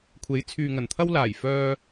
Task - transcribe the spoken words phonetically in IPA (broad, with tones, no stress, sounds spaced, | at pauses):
kʷʰ e˨˥ j t͡sʰ yː˨ ŋ ɐ˨˩ n t̪ʰ ɐ˥ w l aː˨˩ j f œː˧